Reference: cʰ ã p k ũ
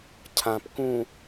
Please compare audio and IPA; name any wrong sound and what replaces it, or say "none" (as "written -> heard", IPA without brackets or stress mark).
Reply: none